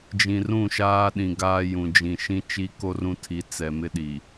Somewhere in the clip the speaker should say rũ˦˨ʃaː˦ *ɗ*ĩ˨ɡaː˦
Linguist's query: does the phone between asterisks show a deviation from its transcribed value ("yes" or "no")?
no